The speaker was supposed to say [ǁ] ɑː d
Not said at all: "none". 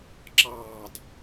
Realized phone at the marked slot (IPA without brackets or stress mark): ǁ